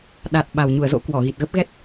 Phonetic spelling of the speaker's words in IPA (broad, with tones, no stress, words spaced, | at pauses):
ɗa˨˩t̚ ɓa˨˩wɲu˧˩ə̯zo̰˧˥ kwɔ˧˩ɣi˨˩t̚ɣə˦˥p̚ ɣɛ˦˥t̚